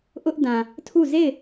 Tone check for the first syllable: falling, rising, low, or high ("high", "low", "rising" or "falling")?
high